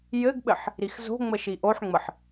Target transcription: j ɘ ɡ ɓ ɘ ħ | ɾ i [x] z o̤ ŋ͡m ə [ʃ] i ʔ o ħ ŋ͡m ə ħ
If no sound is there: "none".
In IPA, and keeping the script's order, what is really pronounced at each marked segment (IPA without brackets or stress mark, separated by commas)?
x, ʃ